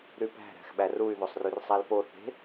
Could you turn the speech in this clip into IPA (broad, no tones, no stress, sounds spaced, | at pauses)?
ɾ y p æ̤ ɾ æ̤ x ɓ æ r u y̯ ð o sˤ r y r sˤ æ l p o θ e̤